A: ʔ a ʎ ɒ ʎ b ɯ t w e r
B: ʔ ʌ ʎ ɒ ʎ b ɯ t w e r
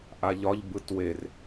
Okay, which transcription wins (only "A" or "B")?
A